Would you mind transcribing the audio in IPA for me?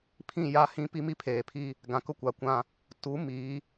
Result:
pʰ ĩ˦˨ j a˦ h ĩ˦ p i˦ m i˦ pʰ eː˨ pʰ i˦ | ɡ ã˨ k ʊ˦ kʷ a˨ kʷ ã˦ | t u˨˦ m iː˨˦

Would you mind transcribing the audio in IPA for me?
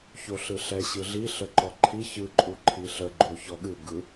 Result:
ç o ɬ ɯ ɬ ɛ ɕ ɯ ɮ i ɬ ə ǃ ɔ ǃʰ i ç ɯ ǃʼ u ǃʰ i ɬ ə ɡ͡ǃ o ç ɔ ɠ ɨ ɡ ɯ

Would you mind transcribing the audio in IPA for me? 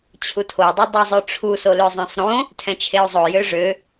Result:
t͡ɕʰ u tʰ o dˤ o dˤ i zˤ ø ʈ͡ʂʰ u s o l ø zˤ ẽ sˤ ɾ õ | tʰ ɛ̃ t͡ʃʰ e u̯ zˤ o j ø ʐ ø

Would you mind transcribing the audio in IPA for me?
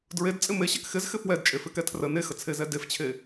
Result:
d ɹ e d t͡sʼ ɪ m e ɕ ɛ k x ɪ z x ɪ f w ɛ d t͡ʃʼ e f ɪ k ɛ tʰ r ə n e x ə t͡sʰ e z ɛ d e f t͡ɕʰ e

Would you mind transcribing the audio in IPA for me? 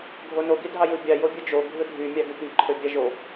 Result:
ɡʱ o n o ɡ i dʱ ɑ j ɯ bʲ ɑ j o bʲ ɯ d͡ʒ o ɡʱ ɯ dʱ y mʲ ɑ ɡ y p i ǃʰ ø bʲ ɑ ʒ o

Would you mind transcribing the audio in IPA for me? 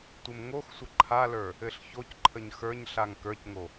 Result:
tʷ ɘ m ŋ o x sʷ ə ǃʰ a l ə˞ | ɘ ɬ ç o c ǃʰ ə ɲ x ə˞ ɲ ɬ a ŋ k ə˞ c ŋ o

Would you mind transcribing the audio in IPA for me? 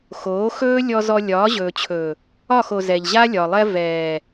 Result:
x oː˨˦ x ɵː˦ lʲ ɔ˨ z ɔ˨ lʲ ɒː˨˦ ʑ ɵː˨ t͡ɕʰ ɵː˨ | ɒ˦˨ x o˨ z ɛ˨ ʎ ʑ a˦ lʲ ɒ˨ lˠ ɛ˦ v ɛː˨

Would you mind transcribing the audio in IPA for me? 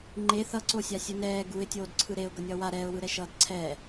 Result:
ŋ͡ǃ e θ ʌ ǀ o sʲ a sʲ ɯ n ɛː ɡ u ɪ̯ tʲ oː d ǀʰ ɯ ɾ e ʊ̯ ɡ ʌ nʲ ʌː w a ɾ ɛ ʊ̯ w ɯ ɾ ɛ ʃ ʌː d ǀʰ ɛː

